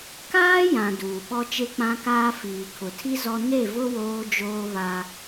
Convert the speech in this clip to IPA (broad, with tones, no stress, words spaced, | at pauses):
kaː˦ jã˨ duː˨ɓɔ˦ t͡ʃe˦k͡pã˦kaː˦ fiː˨kʰʊ˨tʰi˦ zɔ˦ ne˦˨vʊ˦ woː˦d͡ʒoː˦βa˦